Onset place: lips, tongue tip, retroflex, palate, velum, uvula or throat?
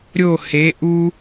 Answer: tongue tip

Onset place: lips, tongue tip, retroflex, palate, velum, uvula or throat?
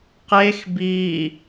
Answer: uvula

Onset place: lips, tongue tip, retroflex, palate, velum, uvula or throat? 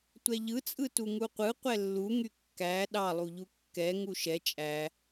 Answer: tongue tip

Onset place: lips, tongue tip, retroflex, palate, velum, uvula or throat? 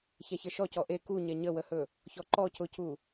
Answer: palate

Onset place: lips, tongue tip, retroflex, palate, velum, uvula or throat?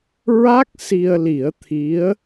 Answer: tongue tip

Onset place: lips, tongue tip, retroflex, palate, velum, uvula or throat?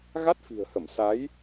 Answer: velum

